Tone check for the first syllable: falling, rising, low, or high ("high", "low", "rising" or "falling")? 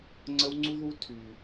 high